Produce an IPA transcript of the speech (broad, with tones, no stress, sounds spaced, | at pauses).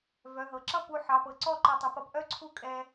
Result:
v œ˩˧˩ ɦ ɤ˩˧ ǁ ʌ˥˨ p u˧˩ ħ ɑ˩˧˩ p ɤ˩˧ ǀ ɔ˥˨ ǃ ɤ˧˩ tˤ ə˩˧ p ʌ˩˧ p ʔ œ˥˨ ǀʰ u˥˨ kʼ ɛ˧